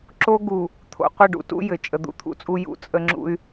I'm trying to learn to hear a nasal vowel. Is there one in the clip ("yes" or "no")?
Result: no